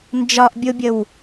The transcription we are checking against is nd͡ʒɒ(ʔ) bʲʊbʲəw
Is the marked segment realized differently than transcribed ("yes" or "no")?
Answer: no